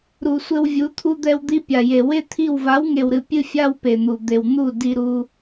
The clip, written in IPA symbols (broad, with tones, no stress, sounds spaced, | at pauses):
ɾ u˨ sʷ ɘ˧ w vʲ u˨˦ t̪ʰ u˧ d̪ ɛ˧ w d̪ i˧ pʲ a˨ j e˨ w e˦ t̪ʰ i˦˨ w v a˨˦ w ŋ e˨ w ɾ ɨ˨ pʲ ɨ˦ fʲ a˦ w p e˨ n̪ u˨ d̪ e˨ w n̪ u˦˨ d i˧ ɾ u˧